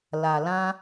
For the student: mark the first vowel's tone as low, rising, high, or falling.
low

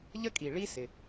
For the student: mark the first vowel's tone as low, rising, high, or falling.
high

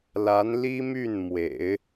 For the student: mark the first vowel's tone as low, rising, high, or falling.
rising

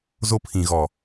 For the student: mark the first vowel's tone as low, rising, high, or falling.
high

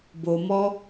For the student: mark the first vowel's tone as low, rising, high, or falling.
low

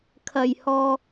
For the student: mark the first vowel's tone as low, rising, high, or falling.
low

